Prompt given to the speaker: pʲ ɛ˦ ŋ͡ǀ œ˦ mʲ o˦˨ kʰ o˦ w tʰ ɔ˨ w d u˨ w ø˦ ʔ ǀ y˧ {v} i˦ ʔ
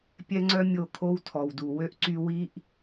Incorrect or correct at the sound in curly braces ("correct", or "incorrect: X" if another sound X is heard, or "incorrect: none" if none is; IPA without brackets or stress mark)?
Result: incorrect: w